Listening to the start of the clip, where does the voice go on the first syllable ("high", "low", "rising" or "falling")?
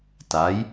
rising